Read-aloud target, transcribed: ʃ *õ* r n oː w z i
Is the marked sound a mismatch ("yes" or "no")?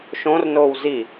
no